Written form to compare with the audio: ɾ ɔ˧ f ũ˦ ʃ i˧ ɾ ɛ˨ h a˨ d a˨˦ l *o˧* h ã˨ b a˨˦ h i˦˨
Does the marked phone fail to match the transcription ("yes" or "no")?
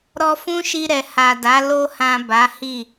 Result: no